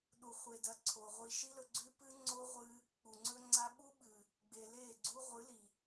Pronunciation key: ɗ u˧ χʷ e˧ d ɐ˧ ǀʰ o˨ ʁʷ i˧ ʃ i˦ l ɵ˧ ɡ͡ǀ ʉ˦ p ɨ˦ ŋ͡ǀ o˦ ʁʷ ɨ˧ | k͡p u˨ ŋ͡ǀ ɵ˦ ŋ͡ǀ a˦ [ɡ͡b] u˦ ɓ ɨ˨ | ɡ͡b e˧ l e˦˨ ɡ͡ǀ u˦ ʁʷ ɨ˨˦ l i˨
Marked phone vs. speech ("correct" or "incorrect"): incorrect